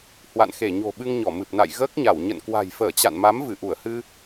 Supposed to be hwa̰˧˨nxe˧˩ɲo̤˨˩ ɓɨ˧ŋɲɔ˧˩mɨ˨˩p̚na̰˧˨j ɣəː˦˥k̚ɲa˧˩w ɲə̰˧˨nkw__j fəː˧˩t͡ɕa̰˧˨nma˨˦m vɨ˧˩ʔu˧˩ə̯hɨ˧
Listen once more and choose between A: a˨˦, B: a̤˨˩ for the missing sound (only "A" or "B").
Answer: B